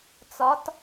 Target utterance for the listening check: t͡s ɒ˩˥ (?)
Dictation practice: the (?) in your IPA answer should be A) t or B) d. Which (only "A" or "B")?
A